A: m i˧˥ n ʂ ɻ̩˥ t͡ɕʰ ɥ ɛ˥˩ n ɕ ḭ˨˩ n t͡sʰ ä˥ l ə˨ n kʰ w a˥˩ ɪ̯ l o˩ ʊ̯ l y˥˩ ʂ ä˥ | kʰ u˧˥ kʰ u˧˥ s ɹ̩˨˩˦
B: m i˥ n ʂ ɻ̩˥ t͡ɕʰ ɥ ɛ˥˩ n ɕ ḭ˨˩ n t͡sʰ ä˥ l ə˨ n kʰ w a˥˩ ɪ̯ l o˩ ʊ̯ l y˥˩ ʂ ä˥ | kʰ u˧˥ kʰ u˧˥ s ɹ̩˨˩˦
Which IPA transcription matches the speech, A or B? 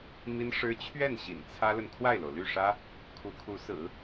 B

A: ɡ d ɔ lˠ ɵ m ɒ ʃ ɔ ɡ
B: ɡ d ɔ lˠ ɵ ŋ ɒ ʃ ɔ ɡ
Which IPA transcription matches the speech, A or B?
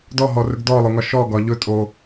B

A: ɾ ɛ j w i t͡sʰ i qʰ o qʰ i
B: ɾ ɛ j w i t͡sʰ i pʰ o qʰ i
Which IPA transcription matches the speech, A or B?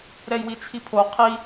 B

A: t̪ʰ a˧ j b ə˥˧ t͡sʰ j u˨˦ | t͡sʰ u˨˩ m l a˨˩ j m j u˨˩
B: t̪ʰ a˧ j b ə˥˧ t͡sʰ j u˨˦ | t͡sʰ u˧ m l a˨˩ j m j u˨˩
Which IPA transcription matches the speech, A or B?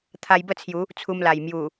B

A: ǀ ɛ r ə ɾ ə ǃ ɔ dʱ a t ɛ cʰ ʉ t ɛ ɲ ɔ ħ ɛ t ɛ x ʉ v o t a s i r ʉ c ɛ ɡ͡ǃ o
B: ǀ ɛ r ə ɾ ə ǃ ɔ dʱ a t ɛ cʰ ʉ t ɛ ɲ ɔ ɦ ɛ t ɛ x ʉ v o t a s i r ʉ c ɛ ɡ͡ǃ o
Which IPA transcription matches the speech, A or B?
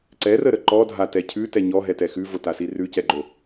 B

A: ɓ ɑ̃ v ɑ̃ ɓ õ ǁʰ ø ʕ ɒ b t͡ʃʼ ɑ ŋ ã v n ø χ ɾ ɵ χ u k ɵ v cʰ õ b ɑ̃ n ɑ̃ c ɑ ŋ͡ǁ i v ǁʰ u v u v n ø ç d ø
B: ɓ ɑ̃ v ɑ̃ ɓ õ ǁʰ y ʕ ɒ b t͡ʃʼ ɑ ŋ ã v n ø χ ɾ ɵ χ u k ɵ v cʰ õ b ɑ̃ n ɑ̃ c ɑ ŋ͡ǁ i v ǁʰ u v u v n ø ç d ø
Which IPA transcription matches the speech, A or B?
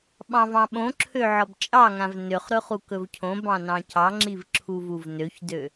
A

